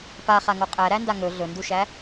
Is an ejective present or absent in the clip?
present